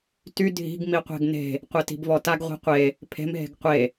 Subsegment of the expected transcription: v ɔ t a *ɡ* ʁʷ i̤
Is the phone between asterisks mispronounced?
no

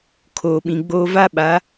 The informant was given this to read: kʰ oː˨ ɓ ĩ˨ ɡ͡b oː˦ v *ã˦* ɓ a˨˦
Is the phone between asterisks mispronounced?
yes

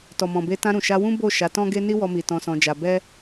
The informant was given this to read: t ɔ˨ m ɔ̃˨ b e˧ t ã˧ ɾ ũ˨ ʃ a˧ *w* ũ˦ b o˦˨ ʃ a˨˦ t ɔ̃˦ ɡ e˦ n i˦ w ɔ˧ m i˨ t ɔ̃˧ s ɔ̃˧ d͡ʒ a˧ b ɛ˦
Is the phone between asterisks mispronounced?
no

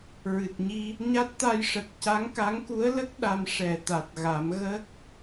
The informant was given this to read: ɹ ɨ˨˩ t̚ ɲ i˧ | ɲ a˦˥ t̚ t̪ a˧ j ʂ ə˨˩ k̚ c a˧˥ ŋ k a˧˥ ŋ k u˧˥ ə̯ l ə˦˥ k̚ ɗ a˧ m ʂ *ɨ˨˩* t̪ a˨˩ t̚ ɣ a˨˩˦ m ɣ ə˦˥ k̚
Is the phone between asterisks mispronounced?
yes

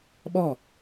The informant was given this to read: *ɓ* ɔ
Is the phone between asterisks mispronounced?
no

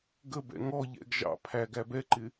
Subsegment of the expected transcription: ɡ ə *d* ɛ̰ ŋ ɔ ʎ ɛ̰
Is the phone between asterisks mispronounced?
yes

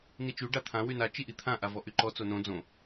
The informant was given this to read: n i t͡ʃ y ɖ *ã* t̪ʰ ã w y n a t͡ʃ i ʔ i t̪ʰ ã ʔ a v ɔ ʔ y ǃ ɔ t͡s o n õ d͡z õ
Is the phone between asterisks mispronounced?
yes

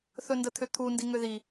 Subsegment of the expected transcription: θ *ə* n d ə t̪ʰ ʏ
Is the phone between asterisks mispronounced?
yes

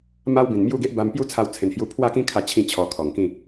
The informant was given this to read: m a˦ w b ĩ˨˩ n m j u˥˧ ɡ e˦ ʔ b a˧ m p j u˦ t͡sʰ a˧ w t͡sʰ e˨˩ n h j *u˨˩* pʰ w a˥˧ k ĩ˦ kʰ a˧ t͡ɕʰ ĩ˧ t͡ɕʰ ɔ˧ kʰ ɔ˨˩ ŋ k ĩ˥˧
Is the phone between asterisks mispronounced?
yes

